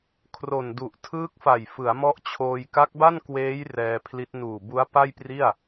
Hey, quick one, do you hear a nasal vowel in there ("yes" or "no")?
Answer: no